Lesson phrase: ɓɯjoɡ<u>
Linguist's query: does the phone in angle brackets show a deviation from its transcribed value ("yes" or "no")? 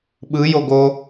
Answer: yes